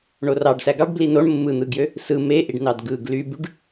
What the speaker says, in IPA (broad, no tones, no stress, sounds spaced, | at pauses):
ɳ o r ɑ ɖ s æ ɡ ɑ ɖ b l i n o ɳ mː ɯ n̪ ɯ ɡ j ø | s ɯ m e ʔ i ɖ n ɑ d ɡ ɯ ɡ l y b y ɖ